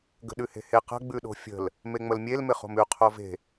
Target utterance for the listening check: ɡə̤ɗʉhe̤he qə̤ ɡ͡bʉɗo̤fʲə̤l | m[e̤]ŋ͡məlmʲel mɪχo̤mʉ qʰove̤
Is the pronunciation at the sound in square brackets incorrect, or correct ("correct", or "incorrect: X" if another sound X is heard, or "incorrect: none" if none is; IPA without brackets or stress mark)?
incorrect: e